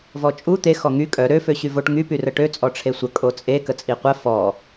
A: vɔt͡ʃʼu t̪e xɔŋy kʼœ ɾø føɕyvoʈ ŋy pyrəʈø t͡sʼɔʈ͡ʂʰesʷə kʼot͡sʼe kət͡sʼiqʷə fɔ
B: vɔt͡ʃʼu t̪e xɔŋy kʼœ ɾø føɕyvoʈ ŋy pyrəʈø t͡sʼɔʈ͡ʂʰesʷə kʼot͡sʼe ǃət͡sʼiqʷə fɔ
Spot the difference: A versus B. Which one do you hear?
A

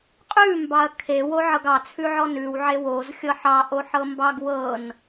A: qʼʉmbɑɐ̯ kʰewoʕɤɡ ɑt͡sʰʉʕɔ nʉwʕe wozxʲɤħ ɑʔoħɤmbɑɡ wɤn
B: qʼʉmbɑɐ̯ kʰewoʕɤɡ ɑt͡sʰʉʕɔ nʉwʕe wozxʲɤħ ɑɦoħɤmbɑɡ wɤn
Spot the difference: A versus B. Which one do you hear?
A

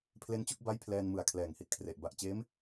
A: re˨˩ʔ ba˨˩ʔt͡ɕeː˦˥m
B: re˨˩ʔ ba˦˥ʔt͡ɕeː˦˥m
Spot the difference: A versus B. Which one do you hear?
A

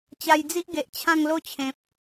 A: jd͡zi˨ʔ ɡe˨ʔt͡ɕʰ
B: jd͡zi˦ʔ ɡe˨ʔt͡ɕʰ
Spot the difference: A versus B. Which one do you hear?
B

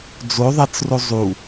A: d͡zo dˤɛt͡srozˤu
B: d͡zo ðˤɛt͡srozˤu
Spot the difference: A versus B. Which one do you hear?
B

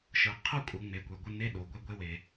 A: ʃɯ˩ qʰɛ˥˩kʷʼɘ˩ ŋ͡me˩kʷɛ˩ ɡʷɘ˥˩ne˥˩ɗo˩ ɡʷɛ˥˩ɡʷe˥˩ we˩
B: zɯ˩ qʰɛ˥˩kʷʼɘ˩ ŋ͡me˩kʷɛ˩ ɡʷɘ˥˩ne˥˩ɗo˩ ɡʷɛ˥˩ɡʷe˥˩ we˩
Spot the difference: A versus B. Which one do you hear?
A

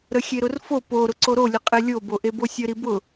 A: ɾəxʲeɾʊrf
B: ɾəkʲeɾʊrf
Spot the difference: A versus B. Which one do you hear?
A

